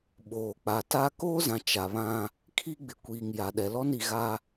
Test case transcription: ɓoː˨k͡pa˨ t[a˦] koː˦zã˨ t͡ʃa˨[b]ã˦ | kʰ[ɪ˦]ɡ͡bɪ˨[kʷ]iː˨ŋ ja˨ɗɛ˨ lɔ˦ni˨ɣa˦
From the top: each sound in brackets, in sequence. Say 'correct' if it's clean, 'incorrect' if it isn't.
correct, incorrect: β, incorrect: i˦, correct

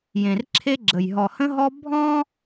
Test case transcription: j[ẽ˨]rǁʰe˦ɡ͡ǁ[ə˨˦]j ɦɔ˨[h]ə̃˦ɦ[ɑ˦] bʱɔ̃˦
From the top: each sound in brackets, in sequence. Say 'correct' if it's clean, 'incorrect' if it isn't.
correct, incorrect: ə˨, correct, incorrect: ɔ˦

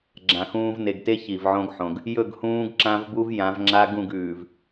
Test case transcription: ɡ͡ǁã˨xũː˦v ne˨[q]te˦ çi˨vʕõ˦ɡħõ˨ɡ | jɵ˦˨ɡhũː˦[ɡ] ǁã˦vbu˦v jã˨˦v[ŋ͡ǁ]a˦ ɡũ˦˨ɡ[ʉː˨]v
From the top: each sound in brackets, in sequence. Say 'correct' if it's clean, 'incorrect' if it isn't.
incorrect: ɡ, correct, correct, correct

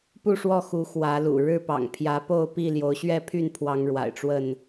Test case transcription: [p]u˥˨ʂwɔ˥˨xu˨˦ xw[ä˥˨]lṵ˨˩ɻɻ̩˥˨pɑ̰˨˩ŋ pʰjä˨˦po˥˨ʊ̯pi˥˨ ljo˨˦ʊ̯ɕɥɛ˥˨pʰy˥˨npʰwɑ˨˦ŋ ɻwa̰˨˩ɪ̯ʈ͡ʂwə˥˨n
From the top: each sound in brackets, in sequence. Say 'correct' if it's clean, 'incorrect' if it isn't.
correct, incorrect: ä˨˦

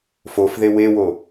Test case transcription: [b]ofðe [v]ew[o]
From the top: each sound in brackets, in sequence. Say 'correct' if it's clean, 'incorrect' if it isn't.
incorrect: f, incorrect: w, correct

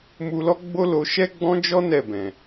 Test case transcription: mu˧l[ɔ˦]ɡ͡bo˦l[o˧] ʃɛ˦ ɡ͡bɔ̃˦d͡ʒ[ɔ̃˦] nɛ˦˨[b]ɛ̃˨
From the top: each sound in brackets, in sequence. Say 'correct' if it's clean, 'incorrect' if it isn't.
correct, correct, incorrect: ɔ˦, correct

